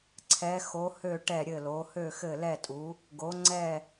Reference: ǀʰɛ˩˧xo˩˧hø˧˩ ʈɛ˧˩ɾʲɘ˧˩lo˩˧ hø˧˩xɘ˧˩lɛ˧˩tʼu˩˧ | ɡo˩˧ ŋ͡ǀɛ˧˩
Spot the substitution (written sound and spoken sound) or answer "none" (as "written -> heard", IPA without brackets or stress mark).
none